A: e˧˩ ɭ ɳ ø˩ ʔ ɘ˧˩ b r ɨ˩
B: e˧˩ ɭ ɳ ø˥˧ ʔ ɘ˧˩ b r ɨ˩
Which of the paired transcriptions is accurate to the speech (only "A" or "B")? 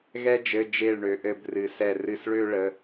A